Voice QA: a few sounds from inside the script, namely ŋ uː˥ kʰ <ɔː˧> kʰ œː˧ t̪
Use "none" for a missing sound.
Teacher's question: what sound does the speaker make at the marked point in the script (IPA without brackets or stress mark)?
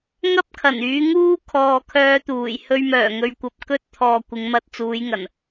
ɔː˨